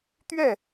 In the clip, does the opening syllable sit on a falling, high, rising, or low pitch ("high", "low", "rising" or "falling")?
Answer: falling